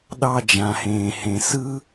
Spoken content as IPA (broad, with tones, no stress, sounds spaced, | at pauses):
ɗ ɑ˥ d͡ʒ ã˩ h ẽː˩ h ẽ˩ s ɯ˥